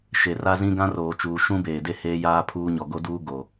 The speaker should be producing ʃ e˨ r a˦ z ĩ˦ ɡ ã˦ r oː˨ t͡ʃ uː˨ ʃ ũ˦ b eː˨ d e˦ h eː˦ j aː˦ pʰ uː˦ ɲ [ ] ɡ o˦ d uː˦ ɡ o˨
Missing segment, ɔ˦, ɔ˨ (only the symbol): ɔ˨